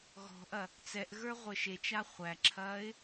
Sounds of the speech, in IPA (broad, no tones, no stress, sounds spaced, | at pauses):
ɣ ɔ̤ ʔ ɐ | t͡s ɛ ʔ ɣ ə˞ ʁʷ əː ʃ e t͡ʃ a χʷ æ ǁʰ ɐː ɪ̯